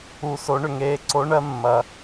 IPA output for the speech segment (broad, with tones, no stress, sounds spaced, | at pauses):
u˧ s o˧˥ ɳ ʏ˧ ŋ eː˧˥ ǀ o˧˥ ɳ ɜ˧˥ mː ɐ˧